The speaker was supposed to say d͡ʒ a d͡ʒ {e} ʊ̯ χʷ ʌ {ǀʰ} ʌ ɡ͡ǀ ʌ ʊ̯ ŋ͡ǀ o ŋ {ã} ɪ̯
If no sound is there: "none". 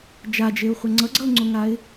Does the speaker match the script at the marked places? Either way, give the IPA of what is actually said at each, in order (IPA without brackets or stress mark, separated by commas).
e, ŋ͡ǀ, a